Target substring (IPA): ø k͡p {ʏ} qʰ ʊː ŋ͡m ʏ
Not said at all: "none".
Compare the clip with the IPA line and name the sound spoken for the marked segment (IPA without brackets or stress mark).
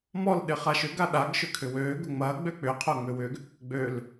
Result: ʏ